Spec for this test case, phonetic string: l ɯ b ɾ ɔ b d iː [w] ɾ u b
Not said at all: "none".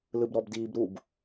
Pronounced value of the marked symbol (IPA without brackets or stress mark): b